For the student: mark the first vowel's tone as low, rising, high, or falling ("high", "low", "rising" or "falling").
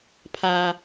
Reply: high